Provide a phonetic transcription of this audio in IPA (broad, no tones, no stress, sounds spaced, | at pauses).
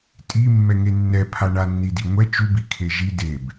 tʼ i mː ɛ ŋ e nː ɛ pʰ a ɳ a nː i d i ŋʷ ɛ t͡ʃ u b i kʰ e ʒ i d e b